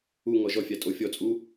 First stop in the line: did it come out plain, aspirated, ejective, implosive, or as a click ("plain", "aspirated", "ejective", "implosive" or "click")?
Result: ejective